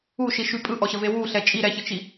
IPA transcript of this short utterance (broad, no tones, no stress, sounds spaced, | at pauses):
u ʃ i ʃ y pʼ ɯ ʔ ɔ ɕ ə v e w u ɬ ɛ t͡ʃʼ i ɾ ɛ ç ə t͡ʃ i